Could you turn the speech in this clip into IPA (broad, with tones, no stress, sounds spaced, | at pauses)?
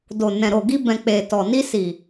d o˨ n ɛ̃˨ ɾ o˨ ɡ i˧ b ɛ̃˨ k͡p e˨ t ɔ˨ n i˧ s i˨